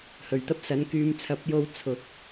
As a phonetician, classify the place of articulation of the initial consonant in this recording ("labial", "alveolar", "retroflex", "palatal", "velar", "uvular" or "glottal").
glottal